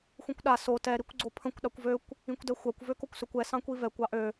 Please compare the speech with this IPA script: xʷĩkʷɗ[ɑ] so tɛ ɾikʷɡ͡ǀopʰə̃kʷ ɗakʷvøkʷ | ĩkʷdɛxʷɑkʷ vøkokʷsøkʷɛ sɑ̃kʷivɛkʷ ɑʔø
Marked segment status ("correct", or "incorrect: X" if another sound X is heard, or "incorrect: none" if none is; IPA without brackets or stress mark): incorrect: a